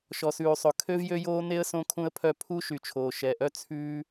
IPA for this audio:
ʃ ɔ˨ s ʉː˨ sˤ ɵ˨ kʰ ø˥ v j ø˥ j oː˥ n e˥ ə̯ s õ˥ kʰ ũ˥ ə̯ pʰ œ˥ pʰ u˥ ʃ y˨ t͡ʃʰ oː˨ ʃ ɛ˨ ʔ œ˥ t͡sʰ ʉː˥

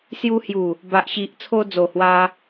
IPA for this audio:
s j u˧ h j u˨˩ | b a˨ ʔ ɕ i˨ ʔ t͡sʰ o˧ d͡z o˨˩ h w a˦

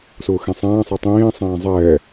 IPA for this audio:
s ʊː x ẽ sˤ ɛ̃ː sˤ ɜ tˤ ĩː sˤ ɛ̃ː zˤ ɛː

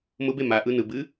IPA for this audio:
m ʊ b e m a ʔ ɯ n ɯ b ɨ

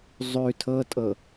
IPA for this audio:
zˤ ʉ tʰ ɤ tʼ ɤ

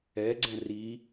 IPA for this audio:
ɛ ɡ͡ǀ ɛ̃ r i

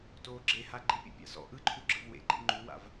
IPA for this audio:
t oː ɡ͡ǁ e h a ɡ͡ǃ i pʲ ṵ pʲ a̰ s ɔ̰ ʔ ɯ ǃʰ u ɡ͡ǁ ɯ v w ḛ ɡ͡ǃ ḛ ŋ͡ǃ u w a̰ v

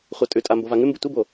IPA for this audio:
χʷ a tʼ ʉ tʼ a m b o v a ŋ ʉ m b ɨ tʷ i b o

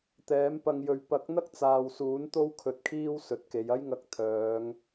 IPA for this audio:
t̪ ɛː˨˥ m p ɐ˧ ŋ j ɵ˨ ɥ p ɐ˨˥ k̚ n̪ ɐ˥ k̚ t͡s aː˨ w s uː˨˥ n t̪ o˥ w kʰ ɵ˨ t̚ kʰ iː˥ w s ɵ˨ t̚ k e˨˧ j ɐ˥ j ŋ ɐ˧ k̚ t̪ʰ œː˨˧ ŋ

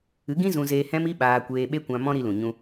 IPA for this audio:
ɨ˨˦ ɡ ĩ˦ z ũ˧ z eː˧ h ɛ̃˦ m i˦ ɓ aː˧ kʷ eː˧ ɓ e˦ kʷ ã˧ m ɔ̃˦ ɾ i˧ l ũ˨ ɲ ũ˧

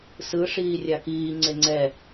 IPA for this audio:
s ɯ ʂ iː rʲ a k iː ŋ͡ǀ e ŋ͡ǀ ɛ

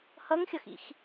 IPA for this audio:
h ʌ ŋ xʲ ʌ x ḭ x

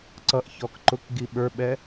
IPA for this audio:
ǀ ʌ ʔ ç ɔ k ǃ ʊ k ɡ i ɓ ə˞ ɓ ɛ

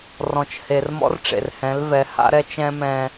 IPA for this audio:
r ɔ̃˨ t͡ʃ h e˨ r m ɔ̰˦ r ʈ͡ʂ ḛ˨ r h ɛ̃˨˦ l v ɛ˨˦ h a̰˦ ɾ ɛ˦ t͡ʃ ɛ̃˦ m ɛ̃˦

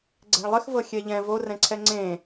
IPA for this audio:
ɡ͡ǀ ɛ̤ ɭ lˠ ɪ x v ɤ xʲ ɛ ʎ ɛ̃ v o r ɛ̃ ǀʰ ɛ ŋ͡ǀ ẽ

